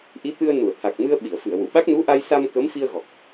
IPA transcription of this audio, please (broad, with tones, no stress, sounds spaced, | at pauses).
ʔ i˧˥ t̪ ɨ˧ ə̯ n u˨˩˨ ə̯ t̪ʰ a˨˩ k̚ m ɨ˧ ə̯ ɓ i˨˩˨ ə̯ f ɨ˨˩˨ ə̯ w u˨˩˨ ɓ a˦˥ k̚ n u˧˥ ʔ a˧ j s a˧ m k ə˧˥ m f i˧ ə̯ ɣ ɔ˨˩ k̚